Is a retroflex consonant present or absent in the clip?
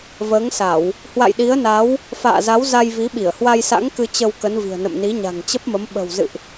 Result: absent